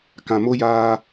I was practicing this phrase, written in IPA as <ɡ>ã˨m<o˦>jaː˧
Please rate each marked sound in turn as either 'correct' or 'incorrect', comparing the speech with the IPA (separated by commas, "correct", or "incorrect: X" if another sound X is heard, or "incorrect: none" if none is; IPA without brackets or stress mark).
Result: incorrect: k, correct